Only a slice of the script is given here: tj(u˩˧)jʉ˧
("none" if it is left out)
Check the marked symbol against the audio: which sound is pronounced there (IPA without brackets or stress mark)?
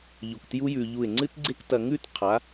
u˥